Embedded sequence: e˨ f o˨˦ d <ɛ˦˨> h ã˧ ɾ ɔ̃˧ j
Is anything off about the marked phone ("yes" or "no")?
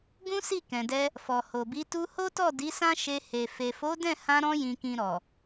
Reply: yes